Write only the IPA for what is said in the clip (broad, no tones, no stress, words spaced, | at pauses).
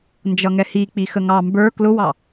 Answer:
nd͡ʒʌŋɛhik͡pi xəŋɑ mbə˞ klʊwɑ